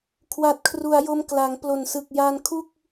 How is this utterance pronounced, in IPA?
kʰ w a˨˩ t̚ kʰ r u˩˦ a̯ j o˧ m k l a˩˦ ŋ p l o˨˩ n s ɯ˨˩ k̚ j aː˧ n kʰ u˥˩ k̚

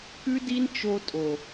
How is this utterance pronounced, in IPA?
k ʉ˦ d i˦ n t͡ʃ o˧ tʼ o˨

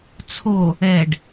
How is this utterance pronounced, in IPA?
t͡sʰ o | ɛ ɖ

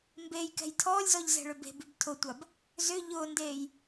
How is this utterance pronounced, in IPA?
m b e j k ɛ̤ j tʰ ɔː lʲ z ɔ ʎ z ɛ̤ ɭ ʏ b e̤ b y b tʰ ʊ tʷ a b | z ʏ ʎ ʊː n d eː j

